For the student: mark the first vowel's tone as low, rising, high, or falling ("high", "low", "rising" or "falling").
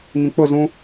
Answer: low